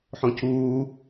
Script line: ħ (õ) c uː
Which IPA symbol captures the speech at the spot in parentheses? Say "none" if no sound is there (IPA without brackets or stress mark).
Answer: õ